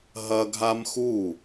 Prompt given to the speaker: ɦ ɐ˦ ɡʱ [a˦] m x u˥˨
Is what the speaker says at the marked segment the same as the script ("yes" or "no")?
yes